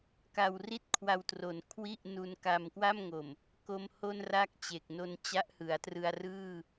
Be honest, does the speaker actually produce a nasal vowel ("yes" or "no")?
no